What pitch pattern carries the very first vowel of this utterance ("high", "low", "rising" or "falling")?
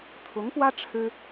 rising